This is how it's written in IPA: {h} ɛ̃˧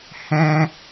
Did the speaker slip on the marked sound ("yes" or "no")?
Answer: no